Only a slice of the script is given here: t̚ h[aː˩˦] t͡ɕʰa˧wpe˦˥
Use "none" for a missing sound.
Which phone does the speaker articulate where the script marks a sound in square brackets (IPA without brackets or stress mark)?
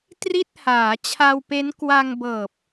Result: aː˩˦